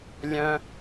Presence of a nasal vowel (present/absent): present